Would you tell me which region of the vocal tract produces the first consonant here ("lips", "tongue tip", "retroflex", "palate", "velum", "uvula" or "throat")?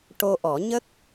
retroflex